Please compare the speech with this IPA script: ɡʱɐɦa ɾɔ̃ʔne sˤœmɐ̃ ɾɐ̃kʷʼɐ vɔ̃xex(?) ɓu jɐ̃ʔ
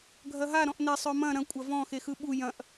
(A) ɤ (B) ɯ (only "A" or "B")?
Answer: B